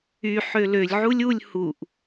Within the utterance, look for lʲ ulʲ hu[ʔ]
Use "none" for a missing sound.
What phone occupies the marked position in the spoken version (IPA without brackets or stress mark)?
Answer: ʔ